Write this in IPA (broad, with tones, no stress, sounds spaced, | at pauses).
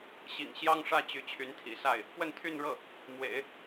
ɕ ḭ˨˩ ŋ ɕ j ɑ˥ ŋ ʂ ä˥˩ t͡ɕ y˧˥ t͡ɕʰ y˧˥ n t̪ʰ ḭ˨˩ s a˥˩ ɪ̯ | p w ə˥˧ n t̪ʰ y˥˧ n ɻ ɤ˥˩ | m w ḛ˨˩˦ ɪ̯